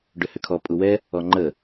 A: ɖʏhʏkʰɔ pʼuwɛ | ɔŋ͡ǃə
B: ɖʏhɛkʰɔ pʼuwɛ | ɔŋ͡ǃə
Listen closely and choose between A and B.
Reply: A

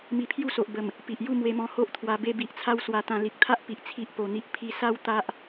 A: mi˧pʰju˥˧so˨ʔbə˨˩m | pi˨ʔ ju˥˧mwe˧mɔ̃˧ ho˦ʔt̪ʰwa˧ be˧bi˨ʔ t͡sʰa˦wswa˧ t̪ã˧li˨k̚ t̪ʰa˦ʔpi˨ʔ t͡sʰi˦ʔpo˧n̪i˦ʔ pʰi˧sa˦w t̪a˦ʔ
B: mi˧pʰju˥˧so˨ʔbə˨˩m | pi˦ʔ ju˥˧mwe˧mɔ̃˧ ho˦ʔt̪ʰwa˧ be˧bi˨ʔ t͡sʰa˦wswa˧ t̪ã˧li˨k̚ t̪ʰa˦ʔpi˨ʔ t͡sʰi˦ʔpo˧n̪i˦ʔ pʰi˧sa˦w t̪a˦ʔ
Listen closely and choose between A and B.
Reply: A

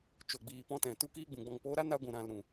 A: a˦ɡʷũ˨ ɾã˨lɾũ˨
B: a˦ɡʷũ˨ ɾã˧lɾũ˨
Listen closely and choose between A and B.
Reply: A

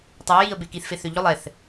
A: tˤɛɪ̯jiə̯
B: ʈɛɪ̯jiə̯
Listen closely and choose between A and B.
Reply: A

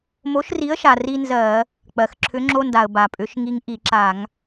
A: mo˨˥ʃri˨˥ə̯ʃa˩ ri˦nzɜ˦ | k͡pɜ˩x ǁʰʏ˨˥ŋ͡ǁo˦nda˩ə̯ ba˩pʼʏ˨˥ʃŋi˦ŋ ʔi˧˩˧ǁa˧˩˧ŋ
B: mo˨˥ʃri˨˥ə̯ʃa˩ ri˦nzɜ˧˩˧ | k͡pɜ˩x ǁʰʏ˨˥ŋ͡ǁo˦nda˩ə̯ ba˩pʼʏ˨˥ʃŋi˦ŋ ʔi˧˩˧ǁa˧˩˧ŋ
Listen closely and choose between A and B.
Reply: B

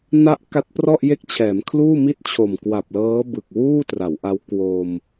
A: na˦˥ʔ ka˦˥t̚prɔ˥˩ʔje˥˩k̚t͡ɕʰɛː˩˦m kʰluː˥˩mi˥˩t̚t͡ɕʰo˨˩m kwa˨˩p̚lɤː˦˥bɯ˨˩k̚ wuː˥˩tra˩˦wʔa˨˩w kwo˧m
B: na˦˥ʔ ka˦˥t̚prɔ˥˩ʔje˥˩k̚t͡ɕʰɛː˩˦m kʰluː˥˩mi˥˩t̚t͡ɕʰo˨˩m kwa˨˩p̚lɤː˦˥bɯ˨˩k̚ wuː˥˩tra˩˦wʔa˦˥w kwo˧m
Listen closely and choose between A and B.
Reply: B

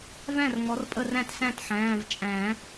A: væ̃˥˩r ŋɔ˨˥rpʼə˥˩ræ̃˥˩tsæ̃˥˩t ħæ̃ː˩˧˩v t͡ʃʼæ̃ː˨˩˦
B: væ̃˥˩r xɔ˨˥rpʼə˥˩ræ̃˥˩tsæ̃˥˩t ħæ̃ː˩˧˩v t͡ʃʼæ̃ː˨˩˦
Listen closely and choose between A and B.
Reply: A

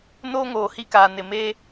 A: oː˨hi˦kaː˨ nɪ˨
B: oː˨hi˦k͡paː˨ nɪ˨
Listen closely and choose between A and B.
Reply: A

